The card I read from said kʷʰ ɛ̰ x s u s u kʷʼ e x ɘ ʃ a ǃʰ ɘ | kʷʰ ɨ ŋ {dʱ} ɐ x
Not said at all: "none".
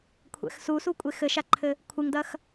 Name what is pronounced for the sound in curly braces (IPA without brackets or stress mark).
d